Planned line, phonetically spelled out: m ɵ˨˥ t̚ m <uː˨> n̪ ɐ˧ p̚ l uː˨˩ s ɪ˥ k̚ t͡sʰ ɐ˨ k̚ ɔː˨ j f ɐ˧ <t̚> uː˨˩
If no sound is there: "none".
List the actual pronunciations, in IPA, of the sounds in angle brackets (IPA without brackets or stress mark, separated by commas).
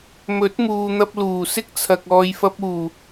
uː˨, p̚